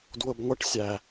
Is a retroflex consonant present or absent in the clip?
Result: present